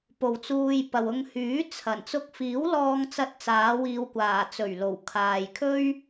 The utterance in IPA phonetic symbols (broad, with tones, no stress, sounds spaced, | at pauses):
p o˨ w t͡s uː˧ j p ɐ˨ w ʊ˧ ŋ h yː˨˥ t͡sʰ ɐ˨˩ n t͡s ʊ˧ k̚ f iː˨˥ w l ɔː˧ ŋ t͡s ɐ˥ t̚ t͡s aː˨˥ w iː˧ w kʷ aː˨˩ t͡s ɵ˨˩ ɥ l o˨˩ w kʰ aː˨ j kʰ ɵ˥ ɥ